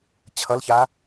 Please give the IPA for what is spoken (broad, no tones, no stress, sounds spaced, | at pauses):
t͡ɕʰ ʌ l ç a